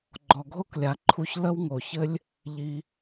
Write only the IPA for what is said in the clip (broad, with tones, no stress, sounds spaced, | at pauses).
ɡ͡ǃ ɔ˩ ɡʱ o˥ k lʲ a˩ ǃʰ u˧ ç l ə˥ w ŋ o˩ ç ɘ˥ lʲ | ʎ i˧